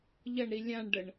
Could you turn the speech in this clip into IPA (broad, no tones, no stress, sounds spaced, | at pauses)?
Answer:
ʎ ʌ ɳ ɾ i lʲ ã ɳ ɖ ə ɳ